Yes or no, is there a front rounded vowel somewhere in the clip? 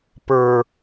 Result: no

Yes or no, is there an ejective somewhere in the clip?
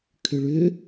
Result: no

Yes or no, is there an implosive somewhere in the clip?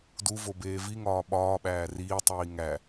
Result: yes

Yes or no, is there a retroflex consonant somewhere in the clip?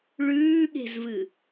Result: yes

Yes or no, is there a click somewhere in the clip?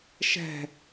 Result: no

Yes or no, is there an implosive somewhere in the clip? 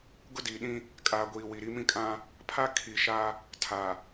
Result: yes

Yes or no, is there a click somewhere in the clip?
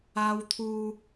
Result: no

